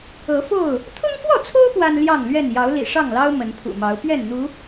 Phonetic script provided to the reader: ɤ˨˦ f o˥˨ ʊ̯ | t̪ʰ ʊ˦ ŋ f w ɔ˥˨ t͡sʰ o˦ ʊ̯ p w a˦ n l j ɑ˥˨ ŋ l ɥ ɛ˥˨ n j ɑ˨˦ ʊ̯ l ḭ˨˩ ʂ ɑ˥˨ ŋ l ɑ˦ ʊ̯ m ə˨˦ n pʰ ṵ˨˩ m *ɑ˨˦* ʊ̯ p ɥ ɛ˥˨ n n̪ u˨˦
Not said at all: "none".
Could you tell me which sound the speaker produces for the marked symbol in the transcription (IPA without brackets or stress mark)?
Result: ɑ˨˦